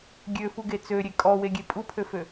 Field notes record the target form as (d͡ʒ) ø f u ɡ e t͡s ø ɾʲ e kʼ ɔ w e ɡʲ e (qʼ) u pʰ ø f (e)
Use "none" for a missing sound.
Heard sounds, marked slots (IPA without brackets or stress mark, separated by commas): ɡʲ, pʼ, ø